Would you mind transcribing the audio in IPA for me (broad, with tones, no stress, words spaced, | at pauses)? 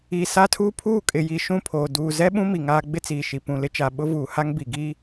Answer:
i˨sa˦tʰuː˦ pʰuː˦˨kʼɪ˨ji˨ ʃũ˦˨pʰoː˨ duː˨ zɛ˦ɓũ˦ mi˨ ŋaː˦ ɡ͡bɪ˦t͡siː˨ ʃi˨pũ˨lɪ˦t͡ʃa˨ ɓʊ˦vuː˨ha˦ŋ bi˨ɡiː˦